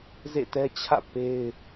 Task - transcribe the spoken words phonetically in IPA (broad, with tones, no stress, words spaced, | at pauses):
zḛ˦˨tɛ˦t͡ɕʰä̰˦˨ pe˦ɪ̯